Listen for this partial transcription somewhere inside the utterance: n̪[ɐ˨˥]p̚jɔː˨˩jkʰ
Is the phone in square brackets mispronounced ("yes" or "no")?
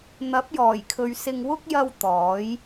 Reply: no